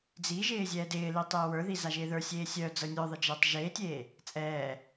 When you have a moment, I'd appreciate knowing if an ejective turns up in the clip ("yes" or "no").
yes